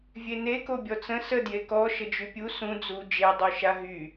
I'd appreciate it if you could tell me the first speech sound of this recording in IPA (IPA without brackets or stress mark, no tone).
vʲ